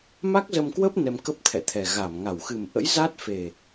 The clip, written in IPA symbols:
m a˦˥ k̚ z ə˧ m k w ə˦˥ p̚ n ɛ˧ m k ə˦˥ p̚ t̪ʰ ɛ̰˧˨ t̪ʰ ɛ˨˩ ɣ a˧˩ m ŋ a˧˩ w x ɨ˨˩ m ʔ ə̰˧˥ j z a˦˥ t̚ f e˨˩

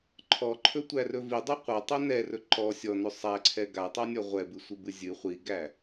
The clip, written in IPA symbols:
ǃʰ ɔ ǃʰ ɵ tʷ æ r ɵ v i dˤ ɵ qʷ a tˤ ɛ n ɛ r ɵ ǃ ɔ sʲ ɔ n ɵ sˤ æ ǀʰ ɛ ɡ a tˤ a nʲ ɔ ʁʷ ɛ b ɨ sʷ ɨ b ɨ zʲ ɨ χʷ i ɡ æ

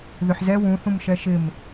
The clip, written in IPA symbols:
ð ʏ ħ z ɛ w ũ θ ũ m ʃ ɛ ʃ ɪ m

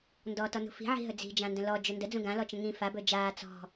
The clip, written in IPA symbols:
n d ɔ t ɔ n ṳ f i̤ ʕ i̤ ɦ ɵ d͡z i̤ d͡ʒ ã n d ə̃ l ɔ d͡ʒ ɵ n d ə d͡z ũ ɡ ã l ɔ t͡ʃ ə̃ ŋ ĩ f a b ɵ d͡ʒ aː t͡s ɔ̤

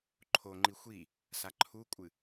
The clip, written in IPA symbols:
ǃʰ o ŋ͡ǃ i xʷ i | s a ǃʰ u kʷʼ ɨ

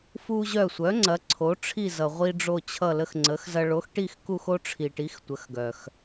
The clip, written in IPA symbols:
f u˦ ʑ œ˦˨ sʷ œ˨˥ ŋ͡ǀ ɐ˨˥ ǀʰ o˨˥ ʈ͡ʂʰ i˦˨ z ʌ˨ ʁʷ i˦ ɖ͡ʐ o˦˨ t͡ɕʰ ʌ˦˨ l ə˦ x ŋ͡ǀ ə˨˥ x z ɐ˦ ɭ o˨˥ x ʈ i˦˨ x k u˦˨ x o˦ ʈ͡ʂʰ i˨ ʈ i˨˥ x tʷ ə˨˥ x ɡ œ˨ x

